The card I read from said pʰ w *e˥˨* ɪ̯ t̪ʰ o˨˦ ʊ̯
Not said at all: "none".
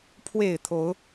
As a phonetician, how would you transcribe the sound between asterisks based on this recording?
e˨˩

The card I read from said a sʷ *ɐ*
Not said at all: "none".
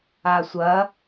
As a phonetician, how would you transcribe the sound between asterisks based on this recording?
ɐ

